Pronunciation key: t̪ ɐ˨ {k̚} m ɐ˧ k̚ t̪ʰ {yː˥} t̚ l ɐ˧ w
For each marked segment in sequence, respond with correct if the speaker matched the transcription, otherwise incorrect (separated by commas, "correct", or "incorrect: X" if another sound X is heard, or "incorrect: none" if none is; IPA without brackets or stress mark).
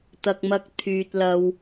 correct, incorrect: yː˨